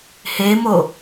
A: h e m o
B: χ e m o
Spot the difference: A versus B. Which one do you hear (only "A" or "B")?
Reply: A